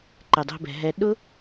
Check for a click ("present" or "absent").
present